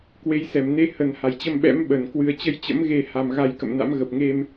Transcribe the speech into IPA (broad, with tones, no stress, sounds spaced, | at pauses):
k w e˨˦ j s ɛ˧˩ m n e˧ h ə˨˩ n h a˧˩ j t͡ɕ ə˧ m ɓ ɛ̰˧˥ m ɓ ə˧˩ n k w ɨ˨˩ ə̯ t͡ɕ ə˧ j t͡ɕ ə̰˧˥ m ɣ e˧ h a˨˩ m ɣ a˧ j k ə̰˧˨ m n a̰˧˥ m ɣ ə˨˩ p̚ ŋ e˧ m